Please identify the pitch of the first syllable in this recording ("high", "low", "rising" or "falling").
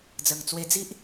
low